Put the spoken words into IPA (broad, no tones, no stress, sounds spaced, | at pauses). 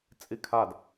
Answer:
t͡sʼ i kʰ a d